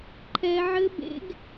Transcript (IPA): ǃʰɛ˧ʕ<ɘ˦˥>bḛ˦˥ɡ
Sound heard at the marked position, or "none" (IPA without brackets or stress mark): ɘ˦˥